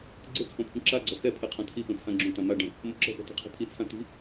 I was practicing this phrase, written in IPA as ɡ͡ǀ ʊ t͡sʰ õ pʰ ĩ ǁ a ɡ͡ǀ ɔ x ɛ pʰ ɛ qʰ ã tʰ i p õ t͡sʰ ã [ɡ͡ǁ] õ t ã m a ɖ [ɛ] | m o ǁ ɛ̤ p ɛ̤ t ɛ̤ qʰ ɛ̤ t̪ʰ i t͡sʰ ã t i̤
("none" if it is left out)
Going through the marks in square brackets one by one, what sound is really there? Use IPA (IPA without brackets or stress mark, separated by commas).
ɡ͡ǁ, ɛ̃